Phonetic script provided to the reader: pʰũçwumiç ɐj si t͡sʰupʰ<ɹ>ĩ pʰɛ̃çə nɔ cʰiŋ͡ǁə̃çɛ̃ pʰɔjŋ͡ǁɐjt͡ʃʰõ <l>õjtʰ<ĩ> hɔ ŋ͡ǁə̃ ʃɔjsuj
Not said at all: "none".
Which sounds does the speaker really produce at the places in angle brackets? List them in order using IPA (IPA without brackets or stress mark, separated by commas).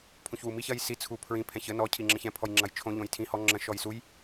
ɹ, ʎ, ĩ